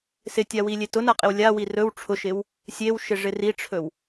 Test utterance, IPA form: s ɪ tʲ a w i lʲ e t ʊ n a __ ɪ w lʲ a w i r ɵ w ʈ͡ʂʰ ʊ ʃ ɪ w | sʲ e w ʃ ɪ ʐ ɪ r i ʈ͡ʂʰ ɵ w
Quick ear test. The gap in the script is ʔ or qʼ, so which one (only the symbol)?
qʼ